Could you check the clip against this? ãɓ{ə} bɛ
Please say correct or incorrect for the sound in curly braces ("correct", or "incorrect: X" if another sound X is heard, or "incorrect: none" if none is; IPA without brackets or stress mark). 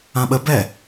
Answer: correct